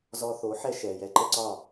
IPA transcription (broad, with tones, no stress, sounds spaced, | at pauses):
z ɔ˧ θ o˩˥ ħ ɛ˧ ʃ ɛ˩ j ɛ˧ ǃ ə˥ ǀ ɒ˥˩